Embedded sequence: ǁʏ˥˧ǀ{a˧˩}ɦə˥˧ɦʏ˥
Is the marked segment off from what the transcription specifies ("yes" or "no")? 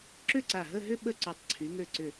no